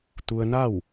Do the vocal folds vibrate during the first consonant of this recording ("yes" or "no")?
no